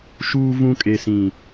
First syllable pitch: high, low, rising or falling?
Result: low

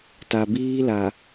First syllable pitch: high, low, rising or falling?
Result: low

